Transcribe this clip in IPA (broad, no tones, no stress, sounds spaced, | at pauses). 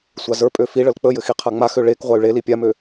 sʷ a z ə˞ pʼ ø f i ɭ ə l k͡p ə j ɘ x i qʰ a ŋ͡m a x ø ɭ e k ʁʷ a y̯ ɭ e l i pʲ a m ø